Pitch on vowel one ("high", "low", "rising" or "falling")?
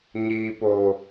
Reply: low